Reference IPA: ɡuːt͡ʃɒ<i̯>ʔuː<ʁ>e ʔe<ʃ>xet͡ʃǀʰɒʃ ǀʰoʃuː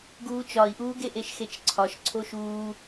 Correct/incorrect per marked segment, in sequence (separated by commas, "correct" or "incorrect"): correct, incorrect, correct